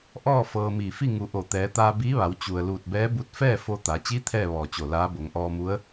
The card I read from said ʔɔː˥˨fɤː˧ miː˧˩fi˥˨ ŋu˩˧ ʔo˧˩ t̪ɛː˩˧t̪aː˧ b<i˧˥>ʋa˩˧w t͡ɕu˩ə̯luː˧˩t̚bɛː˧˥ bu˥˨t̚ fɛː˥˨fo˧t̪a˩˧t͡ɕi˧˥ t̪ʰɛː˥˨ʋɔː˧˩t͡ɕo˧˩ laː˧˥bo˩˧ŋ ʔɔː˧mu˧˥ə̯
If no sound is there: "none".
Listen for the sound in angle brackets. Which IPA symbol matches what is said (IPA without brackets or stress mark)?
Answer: iː˧˥